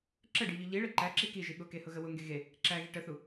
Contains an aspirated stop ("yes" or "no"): no